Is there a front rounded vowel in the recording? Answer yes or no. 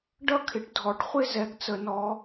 no